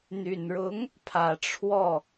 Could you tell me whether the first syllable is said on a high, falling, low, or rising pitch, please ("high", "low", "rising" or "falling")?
low